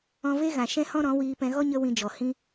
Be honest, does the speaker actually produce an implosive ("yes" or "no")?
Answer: no